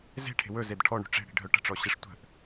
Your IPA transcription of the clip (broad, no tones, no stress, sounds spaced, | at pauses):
z e̤ ʈʰ e̤ w ɵ z e d ʈʰ ɔ ɳ ṳ ʈ͡ʂ e̤ ɽ i̤ ɖʱ œ ʈ ə̤ ʈ͡ʂ ɔ ɕ e ʂ tʷ ə̤ ʔ